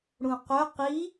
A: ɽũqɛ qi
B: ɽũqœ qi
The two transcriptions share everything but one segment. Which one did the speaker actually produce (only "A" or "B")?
B